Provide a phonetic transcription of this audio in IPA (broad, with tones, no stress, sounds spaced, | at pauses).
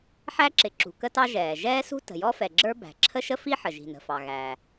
ħ æ˥ ǁ ɪ˩ ǁ ṳ˩ k ə˥ t ɑ˥ ʒ ɛː˩ ʒ ɛː˥ s ṳ˥ t ə̤˩ j ɔ˥ f ɛ˩ ɡ͡ǁ ə˞˥ b æ̤˩ ǁʰ ə˥ ʃ ə˥ f i˥ ħ ə˩ ʒ i̤˩ n ə̤˩ f ɑ˩ ɣ æ˩